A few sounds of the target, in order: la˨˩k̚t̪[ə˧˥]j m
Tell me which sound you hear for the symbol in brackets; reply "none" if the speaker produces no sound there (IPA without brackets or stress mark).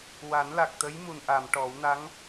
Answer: ə˧˥